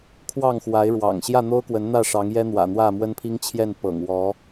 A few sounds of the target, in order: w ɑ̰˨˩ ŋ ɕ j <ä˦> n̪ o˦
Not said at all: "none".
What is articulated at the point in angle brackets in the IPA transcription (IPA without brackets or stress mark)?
ä˥˨